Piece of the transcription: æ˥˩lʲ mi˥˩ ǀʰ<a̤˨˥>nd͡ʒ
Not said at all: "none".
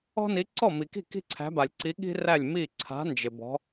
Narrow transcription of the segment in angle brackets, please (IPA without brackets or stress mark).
a̤˨˥